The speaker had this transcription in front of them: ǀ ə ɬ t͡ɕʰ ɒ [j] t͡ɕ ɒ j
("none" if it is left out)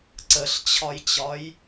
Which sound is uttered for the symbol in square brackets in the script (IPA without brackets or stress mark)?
j